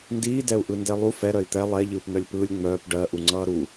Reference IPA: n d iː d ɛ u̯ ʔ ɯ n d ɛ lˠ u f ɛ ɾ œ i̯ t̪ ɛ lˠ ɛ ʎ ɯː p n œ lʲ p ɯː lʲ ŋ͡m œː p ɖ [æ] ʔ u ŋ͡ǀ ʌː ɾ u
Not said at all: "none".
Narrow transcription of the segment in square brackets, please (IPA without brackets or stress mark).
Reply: ɜ